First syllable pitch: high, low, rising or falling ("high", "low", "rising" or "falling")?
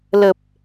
low